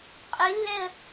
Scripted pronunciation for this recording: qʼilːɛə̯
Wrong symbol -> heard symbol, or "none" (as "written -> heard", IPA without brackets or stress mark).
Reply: none